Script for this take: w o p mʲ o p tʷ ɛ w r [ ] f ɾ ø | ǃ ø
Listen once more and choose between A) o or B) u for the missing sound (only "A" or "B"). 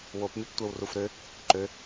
B